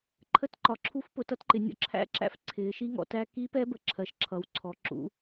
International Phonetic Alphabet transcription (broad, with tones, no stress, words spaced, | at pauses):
ǃʰə˦˥tǃɒ˩˧ǁʰu˦˥fpʊ˩˧ tʌ˦˥tǃɪ˩˧ nʲɔ̰˦˥ǁʰæ̰˦˥ǁæ̰˦˥f ǀʰɪː˩˧ ʃi˦˥ŋɔ̰˩˧tæ˦˥ ki˦˥pɛ˦˥bə˩˧ǁʰɜ˩˧ʃ ǁʰʌ˩˧wǀʰɔ˩˧ǁṵ˩˧